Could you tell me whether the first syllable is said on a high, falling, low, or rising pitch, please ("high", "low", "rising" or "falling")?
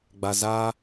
low